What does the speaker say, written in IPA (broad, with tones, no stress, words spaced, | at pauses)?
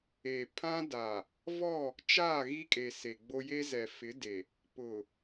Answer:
e˨pʰã˦ da˨ | vɔ˦˨ | t͡ʃaː˦˨ɣi˦kʼe˨ se˨ɡ͡bo˦ je˦ zɛ˨fɪ˨˦de˨ | pʊ˨